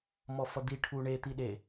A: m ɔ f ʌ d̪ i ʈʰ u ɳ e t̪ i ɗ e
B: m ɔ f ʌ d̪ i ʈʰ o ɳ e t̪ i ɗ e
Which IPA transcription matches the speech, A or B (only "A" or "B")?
A